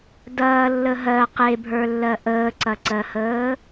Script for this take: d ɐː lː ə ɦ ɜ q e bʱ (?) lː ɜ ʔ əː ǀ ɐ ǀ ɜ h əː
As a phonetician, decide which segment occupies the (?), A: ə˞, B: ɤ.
A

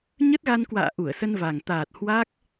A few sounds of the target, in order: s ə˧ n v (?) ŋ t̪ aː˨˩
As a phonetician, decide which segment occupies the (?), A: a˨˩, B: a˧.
A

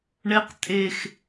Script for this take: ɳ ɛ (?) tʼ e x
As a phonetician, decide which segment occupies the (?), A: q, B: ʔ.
A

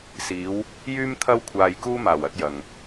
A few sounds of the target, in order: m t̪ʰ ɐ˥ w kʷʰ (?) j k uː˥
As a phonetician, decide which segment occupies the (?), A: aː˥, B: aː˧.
B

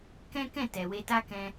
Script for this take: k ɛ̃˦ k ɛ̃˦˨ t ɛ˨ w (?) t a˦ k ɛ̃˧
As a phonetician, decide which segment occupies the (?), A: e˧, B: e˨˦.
A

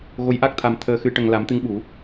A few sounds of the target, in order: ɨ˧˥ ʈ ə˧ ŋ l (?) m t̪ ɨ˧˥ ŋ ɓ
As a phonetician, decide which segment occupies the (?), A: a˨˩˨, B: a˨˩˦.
B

